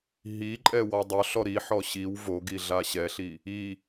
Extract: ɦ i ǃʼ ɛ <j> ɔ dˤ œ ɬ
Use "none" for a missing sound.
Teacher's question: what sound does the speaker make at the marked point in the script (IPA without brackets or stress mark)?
w